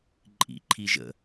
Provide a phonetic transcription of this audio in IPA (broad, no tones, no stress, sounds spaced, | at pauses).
ǃʼ ḭ ǃʰ i ʒ ə̰